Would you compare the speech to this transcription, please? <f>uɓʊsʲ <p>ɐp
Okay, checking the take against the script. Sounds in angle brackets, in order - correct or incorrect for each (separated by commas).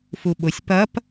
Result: correct, correct